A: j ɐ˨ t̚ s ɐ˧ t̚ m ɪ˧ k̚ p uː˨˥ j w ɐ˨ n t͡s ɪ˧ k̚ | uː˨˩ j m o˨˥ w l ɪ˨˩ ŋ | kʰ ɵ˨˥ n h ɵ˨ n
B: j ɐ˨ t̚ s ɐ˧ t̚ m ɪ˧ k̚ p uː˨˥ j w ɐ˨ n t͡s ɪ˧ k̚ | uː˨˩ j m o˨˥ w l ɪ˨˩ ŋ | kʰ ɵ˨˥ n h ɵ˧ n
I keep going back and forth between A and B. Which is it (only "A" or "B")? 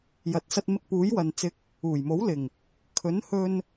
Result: B